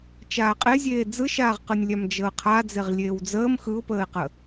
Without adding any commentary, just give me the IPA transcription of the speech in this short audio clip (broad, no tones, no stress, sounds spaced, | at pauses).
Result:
t͡ʃ aː qʼ e zʲ eː d͡z ɯ ʃ aː ʁ q ɯ nʲ lʲ a m d͡ʒ əː qʰ a d͡z e ʁ lʲ eː w d͡z əː m x ɯ ʊ̯ p əː ɪ̯ q ə